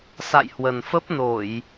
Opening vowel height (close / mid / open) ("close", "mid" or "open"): open